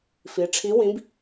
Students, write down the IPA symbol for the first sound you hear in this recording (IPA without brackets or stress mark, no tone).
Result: f